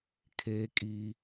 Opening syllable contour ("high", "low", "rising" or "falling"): high